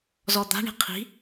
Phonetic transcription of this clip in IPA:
z ɔ d̪ a̤ ɳ i̤ qʰ i̤

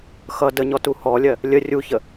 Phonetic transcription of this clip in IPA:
x ʌ d ə ɲ ɔ t u h ɔ lʲ ɜ | lʲ ə rʲ u ç ə

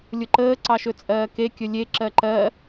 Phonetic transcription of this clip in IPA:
lʲ ʊ ǃ əː ǀ ɑ ʃ ɵ t͡sʼ ɜː k e kʲ ɵ lʲ e ǁ ɜ ǃ ɜ

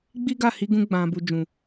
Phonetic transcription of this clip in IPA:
ɡ͡b i˦ ɡ a˦˨ h i˧ ɡ ũ˧ ɡ͡b ã˨ b u˨ d͡ʒ ũ˨

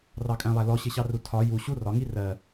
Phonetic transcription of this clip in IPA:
r ɑ kʼ æ̃ lˠ æ l ɔ ɕ ɪ ɕ ɑ r u tʰ ɒ j u ɕ u r ɒ ŋ i r ɜ

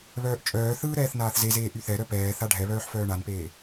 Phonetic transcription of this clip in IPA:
β œː ʔ t͡ʃʼ œː θ ɯː ɾ ɛː θ n aː θ z e z eː ʔ y θ ɛ ɾ œ p ɛː θ a ɖʱ ɛ β œː ħ f œː ɳ a n p eː

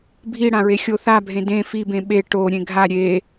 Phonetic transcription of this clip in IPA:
bʱ i ɽ ã ɹ e xʲ o θ a bʱ ẽ d ẽ f i b ẽ ɓ e ʈ o ɾʲ ẽ ɡʱ a ɾʲ e

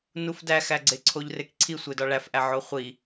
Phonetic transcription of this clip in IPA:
n u f d æ x æ ɡ͡ǀ e ǀʰ o ʎ r e k ǀʰ i sʷ e d ɒ ɭ æ f ʔ æ ʕ o χʷ i

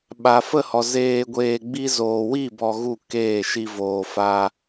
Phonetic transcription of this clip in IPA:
ɓ a˨ f ə˧ h ɔ˨ z eː˧ ɡʷ eː˧ ɡ͡b i˦ z oː˨ w i˦˨ b ɔ˧ ɣ u˦˨ k eː˦˨ ʃ i˧ v oː˨ f a˧

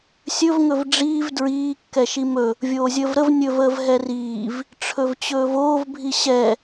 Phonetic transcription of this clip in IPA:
sʲ ɵ v ŋ ɵ v ɖ͡ʐ iː v d ɹ iː kː ɛ ʃ i m ɵ | vʲ oː zʲ əː v ɾ ə v nʲ ɵ v əː v ɦ ɛ r iː v | ʈ͡ʂʰ ɵ v t͡ɕ ɵː v oː v bʱ i ɕ ɛ

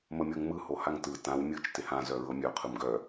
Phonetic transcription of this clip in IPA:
m ə mʲ ɤ ŋ m ɯ h o h a ŋ t ɯ t ã w mʲ ɯ t͡ʃ t ɪ h ã z œ ɹ ɤ mʲ œ qʰ ɯ m ɡ œ

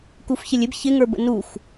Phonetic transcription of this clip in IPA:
k u f ç ɪ lʲ ɪ b ç ɪ ŋ ə˞ b ə̰ n u xʷ

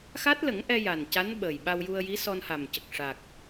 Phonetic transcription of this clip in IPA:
x a˦˥ t̚ l ə˨˩˦ ŋ ʔ ɛ˧ j a˨˩ n c a˧˥ n ɓ əː˨˩ j ɓ a˧ w j u˧ ə̯ j i˧˥ s ɔ˧ n h a˨˩ m c ə˨˩ k̚ ʂ a˨˩ k̚

